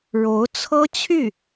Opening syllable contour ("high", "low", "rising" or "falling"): rising